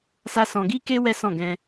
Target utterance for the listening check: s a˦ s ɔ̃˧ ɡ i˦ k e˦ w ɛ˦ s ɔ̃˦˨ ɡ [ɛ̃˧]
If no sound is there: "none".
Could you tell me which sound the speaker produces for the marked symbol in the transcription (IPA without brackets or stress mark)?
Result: ɛ̃˧